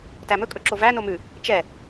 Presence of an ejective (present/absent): present